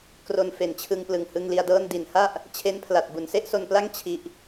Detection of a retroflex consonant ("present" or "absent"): absent